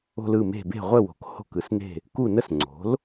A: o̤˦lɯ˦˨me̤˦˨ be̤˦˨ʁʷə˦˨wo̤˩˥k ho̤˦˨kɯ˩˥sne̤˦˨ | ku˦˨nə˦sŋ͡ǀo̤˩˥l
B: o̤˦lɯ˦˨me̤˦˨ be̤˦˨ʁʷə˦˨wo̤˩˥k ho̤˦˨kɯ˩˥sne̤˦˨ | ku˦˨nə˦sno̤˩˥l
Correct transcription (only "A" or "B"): A